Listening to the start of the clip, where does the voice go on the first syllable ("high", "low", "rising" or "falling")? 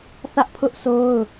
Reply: high